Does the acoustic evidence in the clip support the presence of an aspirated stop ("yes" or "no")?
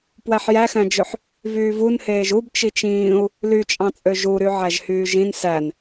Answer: no